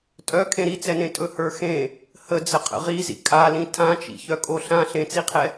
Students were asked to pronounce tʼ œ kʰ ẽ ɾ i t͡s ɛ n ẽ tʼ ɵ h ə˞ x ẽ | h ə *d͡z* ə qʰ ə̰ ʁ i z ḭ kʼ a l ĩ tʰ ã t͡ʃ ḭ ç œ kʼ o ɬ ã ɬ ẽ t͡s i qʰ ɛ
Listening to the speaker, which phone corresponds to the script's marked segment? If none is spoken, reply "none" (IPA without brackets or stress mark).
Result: d͡z